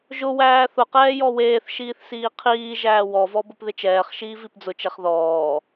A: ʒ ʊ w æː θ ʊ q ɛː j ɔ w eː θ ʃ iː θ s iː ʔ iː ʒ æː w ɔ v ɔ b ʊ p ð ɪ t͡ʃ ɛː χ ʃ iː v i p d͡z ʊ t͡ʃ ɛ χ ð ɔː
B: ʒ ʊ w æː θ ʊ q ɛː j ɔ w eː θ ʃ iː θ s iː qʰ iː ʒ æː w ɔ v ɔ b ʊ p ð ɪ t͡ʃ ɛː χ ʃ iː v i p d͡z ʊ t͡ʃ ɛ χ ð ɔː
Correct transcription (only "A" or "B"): B